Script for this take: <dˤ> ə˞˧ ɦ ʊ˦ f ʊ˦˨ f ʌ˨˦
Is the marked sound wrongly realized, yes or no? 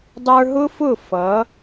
no